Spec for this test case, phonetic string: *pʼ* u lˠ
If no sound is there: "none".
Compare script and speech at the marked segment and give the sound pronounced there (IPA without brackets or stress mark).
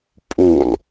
pʼ